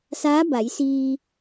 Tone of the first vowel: rising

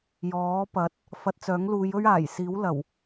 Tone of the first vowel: rising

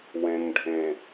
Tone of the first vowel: low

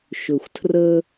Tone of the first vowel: low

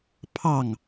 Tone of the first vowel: falling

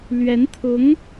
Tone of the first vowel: rising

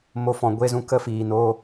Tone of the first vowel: rising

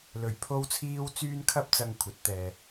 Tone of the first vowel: low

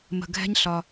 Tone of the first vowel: low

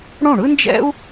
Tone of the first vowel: falling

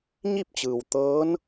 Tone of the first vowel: falling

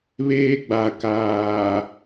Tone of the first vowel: high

